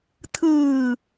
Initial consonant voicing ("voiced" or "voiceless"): voiceless